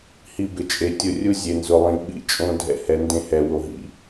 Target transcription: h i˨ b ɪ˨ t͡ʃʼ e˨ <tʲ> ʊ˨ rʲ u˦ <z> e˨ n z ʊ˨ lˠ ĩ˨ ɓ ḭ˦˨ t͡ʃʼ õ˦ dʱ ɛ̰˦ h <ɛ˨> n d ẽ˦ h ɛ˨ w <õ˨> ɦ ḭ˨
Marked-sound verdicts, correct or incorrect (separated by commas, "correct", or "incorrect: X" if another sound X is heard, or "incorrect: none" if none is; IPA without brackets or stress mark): correct, incorrect: zʲ, incorrect: ɛ˨˦, incorrect: o˨